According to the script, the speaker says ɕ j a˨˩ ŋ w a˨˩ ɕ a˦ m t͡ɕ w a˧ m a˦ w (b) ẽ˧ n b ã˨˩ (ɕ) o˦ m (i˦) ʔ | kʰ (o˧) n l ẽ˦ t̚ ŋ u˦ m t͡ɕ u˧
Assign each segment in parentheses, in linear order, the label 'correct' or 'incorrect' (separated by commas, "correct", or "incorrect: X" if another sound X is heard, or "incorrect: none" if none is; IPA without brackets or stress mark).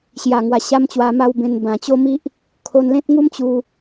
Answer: correct, incorrect: t͡ɕ, correct, correct